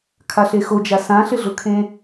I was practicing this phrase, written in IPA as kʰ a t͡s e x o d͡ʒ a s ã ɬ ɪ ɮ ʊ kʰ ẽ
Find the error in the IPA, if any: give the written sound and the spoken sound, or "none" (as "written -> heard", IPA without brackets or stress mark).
t͡s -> ɬ